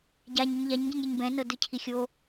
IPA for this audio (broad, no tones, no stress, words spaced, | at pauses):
ɟaɲuɲ ʎaɲɟĩɲɾʲɛɲ bɛ̃nɤdɯcʰi xʲo